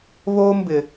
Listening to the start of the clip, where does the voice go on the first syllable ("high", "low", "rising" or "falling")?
high